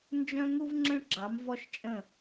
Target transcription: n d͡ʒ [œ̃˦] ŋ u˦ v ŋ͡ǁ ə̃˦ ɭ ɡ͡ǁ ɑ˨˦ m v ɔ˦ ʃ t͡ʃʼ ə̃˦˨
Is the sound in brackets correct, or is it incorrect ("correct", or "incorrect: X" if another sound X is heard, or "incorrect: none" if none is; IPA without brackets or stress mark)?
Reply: correct